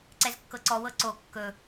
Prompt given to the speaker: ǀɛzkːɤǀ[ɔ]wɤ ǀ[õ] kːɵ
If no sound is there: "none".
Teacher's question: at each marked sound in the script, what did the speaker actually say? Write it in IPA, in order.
ɔ, o

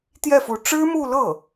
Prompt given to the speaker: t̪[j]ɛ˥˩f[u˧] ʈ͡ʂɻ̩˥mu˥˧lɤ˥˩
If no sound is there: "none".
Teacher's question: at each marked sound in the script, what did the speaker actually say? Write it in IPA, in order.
j, u˧˥

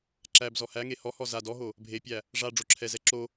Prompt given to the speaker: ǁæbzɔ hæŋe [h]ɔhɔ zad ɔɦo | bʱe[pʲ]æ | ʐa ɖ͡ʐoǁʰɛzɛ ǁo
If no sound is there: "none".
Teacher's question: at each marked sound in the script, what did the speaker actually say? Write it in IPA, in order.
h, pʲ

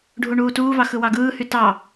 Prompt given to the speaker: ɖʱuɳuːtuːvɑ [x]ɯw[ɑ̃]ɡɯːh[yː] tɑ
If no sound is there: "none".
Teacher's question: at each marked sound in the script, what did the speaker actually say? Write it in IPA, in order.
x, ɑ, y

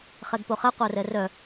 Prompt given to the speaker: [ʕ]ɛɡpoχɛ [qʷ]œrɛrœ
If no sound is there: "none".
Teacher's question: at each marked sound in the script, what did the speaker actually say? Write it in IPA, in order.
χ, qʷ

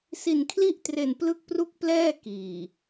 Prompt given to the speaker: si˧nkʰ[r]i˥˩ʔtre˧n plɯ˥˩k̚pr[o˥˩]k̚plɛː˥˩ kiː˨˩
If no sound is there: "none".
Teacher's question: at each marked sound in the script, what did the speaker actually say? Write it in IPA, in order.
l, u˥˩

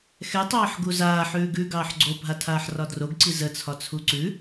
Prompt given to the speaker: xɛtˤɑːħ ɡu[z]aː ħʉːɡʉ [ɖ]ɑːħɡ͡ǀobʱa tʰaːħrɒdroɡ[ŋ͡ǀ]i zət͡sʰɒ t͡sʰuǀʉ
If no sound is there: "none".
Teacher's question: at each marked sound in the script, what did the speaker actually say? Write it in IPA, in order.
z, ɡ, ǀ

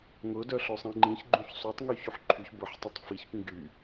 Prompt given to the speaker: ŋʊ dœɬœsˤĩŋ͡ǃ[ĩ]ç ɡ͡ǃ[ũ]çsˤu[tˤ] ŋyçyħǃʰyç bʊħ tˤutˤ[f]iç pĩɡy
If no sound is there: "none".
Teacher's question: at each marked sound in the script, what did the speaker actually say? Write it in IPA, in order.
ĩ, ũ, tˤ, f

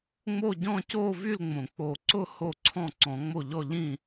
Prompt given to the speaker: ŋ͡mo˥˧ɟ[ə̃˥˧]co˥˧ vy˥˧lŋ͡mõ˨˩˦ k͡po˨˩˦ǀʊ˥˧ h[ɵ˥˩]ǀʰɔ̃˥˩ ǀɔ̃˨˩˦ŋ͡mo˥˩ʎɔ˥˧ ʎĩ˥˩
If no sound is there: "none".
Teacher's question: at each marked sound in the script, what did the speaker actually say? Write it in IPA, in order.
ɔ̃˥˧, o˥˩

